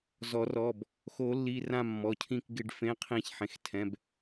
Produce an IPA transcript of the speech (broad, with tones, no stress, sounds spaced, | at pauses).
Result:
z ɔ˨˩˦ r ɔ˩˧˩ b | x o˨˩˦ lː i˩˧˩ r ã˦˨ mː ɔ˩˧˩ cʰ ĩ˦˨ k ɡ ɪ˦˨ ɖ f ẽ˨˥ qʰ ĩ˨˩˦ ç ħ ẽ˩ x tʰ ɛ̃˩˧˩ b